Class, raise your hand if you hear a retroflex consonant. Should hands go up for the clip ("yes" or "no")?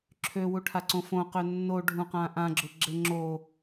yes